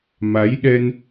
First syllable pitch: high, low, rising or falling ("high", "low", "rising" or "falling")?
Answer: rising